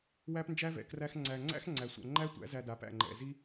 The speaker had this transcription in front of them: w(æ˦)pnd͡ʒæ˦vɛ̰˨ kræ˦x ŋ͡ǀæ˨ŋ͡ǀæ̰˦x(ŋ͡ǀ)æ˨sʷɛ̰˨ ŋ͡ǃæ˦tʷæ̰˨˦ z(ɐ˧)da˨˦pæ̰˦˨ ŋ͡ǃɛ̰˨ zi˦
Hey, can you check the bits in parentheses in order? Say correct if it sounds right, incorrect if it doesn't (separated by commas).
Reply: correct, correct, incorrect